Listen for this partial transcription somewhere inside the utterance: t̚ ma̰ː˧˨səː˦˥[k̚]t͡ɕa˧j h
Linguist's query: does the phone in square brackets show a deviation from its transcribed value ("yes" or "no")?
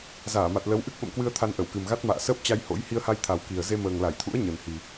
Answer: yes